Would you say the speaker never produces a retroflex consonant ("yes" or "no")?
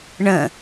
no